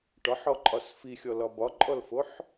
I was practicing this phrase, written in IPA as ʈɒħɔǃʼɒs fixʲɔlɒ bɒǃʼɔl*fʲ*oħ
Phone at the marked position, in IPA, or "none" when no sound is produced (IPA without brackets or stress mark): f